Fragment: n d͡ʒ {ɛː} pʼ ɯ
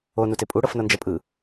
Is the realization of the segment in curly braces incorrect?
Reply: yes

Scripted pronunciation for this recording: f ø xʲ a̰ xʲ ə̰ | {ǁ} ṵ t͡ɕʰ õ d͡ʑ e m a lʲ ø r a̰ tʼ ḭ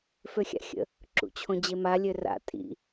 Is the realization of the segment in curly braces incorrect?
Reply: no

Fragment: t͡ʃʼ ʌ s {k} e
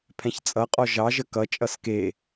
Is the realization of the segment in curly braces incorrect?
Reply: no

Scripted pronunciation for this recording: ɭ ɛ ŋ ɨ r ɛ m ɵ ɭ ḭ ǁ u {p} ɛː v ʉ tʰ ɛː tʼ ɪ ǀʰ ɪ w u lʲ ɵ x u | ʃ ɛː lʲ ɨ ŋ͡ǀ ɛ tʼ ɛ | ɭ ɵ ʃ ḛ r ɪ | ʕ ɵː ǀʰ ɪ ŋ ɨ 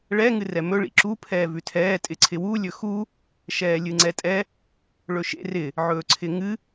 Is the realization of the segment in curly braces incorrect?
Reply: yes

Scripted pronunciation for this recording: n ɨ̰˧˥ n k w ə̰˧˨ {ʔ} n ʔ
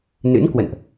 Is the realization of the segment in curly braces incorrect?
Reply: yes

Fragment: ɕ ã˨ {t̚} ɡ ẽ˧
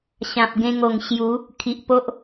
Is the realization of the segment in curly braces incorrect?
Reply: yes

